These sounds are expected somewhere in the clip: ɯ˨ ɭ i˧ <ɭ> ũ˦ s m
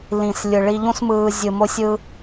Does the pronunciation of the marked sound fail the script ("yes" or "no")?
yes